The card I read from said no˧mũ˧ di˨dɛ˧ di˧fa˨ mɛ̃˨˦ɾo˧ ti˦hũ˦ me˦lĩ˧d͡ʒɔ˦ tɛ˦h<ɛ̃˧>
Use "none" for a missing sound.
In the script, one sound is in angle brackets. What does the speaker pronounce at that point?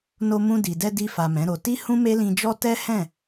ɛ̃˦˨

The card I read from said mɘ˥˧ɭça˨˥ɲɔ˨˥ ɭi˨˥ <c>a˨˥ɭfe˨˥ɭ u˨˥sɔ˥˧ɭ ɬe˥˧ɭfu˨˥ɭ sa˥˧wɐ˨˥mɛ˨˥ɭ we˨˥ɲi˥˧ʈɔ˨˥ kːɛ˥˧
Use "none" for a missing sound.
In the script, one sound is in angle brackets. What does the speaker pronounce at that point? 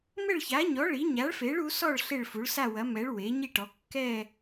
ɲ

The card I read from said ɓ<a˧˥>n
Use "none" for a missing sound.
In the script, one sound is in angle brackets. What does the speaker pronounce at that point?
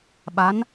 a˧˥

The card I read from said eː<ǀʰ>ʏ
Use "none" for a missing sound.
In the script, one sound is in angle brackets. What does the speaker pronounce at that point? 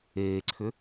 ǀʰ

